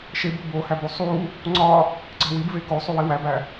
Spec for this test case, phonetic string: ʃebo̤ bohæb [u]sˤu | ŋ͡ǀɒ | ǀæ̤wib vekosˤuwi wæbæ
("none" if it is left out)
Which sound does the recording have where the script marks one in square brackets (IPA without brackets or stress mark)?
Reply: u